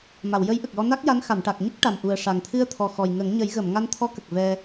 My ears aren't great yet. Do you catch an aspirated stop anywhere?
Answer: yes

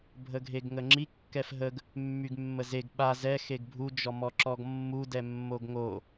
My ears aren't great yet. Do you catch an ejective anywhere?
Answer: no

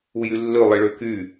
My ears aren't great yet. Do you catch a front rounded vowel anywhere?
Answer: yes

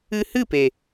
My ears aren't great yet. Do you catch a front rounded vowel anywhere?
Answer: no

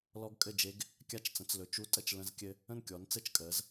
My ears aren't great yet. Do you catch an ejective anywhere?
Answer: yes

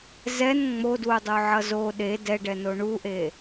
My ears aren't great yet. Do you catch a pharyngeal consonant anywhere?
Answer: yes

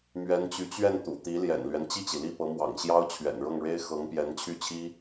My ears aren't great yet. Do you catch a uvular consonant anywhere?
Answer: no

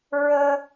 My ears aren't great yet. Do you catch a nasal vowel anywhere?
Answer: no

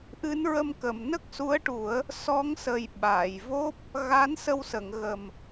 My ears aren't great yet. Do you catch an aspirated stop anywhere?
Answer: no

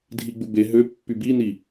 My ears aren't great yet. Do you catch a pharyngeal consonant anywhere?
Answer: no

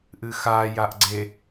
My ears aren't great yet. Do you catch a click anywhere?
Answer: yes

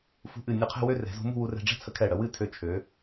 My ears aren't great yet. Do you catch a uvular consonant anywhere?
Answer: yes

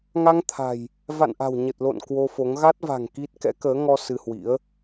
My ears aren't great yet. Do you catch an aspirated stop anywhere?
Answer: yes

